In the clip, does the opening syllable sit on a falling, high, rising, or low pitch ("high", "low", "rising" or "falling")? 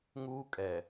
high